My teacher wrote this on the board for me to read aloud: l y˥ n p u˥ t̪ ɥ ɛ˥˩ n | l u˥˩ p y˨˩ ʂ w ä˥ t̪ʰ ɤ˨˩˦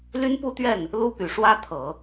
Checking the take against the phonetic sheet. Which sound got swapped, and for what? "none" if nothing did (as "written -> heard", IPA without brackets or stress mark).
none